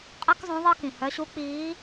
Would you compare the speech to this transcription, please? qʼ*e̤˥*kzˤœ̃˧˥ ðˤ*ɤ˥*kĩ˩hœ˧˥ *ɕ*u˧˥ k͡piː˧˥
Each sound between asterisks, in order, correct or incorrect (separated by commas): incorrect, correct, correct